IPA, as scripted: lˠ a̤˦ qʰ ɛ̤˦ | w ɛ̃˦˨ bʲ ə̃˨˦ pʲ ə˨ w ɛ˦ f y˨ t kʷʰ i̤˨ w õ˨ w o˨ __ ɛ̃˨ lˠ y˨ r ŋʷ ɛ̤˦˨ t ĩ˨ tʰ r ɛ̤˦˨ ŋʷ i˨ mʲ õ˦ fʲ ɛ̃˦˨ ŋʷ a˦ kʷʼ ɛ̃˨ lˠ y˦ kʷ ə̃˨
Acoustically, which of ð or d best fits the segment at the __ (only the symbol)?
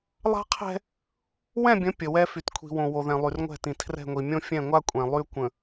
ð